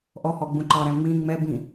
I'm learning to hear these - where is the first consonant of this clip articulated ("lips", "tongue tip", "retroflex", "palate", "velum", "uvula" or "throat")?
throat